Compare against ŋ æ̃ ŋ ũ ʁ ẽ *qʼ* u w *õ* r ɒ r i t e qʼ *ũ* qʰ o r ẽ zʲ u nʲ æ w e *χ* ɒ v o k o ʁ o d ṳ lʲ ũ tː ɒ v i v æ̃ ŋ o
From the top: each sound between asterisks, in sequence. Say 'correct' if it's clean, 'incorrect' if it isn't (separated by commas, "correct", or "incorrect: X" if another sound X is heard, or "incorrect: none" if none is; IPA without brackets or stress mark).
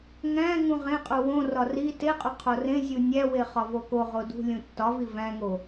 correct, correct, incorrect: u, correct